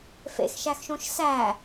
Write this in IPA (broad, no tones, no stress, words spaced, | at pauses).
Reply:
fḛxʃæxʃõʃ sæ